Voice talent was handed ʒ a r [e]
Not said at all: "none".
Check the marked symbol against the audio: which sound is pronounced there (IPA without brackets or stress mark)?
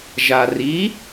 i